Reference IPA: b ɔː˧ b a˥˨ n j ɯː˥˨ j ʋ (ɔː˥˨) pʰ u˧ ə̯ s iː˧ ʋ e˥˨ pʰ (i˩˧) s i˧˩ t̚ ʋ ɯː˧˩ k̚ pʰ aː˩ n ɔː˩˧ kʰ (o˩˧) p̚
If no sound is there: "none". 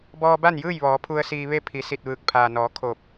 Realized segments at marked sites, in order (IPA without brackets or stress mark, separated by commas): ɔː˩˧, i˩˧, o˧˩